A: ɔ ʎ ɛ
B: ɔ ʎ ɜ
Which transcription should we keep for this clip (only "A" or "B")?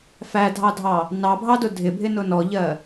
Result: B